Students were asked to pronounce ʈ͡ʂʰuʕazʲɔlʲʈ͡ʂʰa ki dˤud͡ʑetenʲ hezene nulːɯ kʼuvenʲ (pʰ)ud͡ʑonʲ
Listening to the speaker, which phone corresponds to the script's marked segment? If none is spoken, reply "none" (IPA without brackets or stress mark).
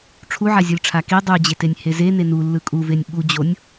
ɓ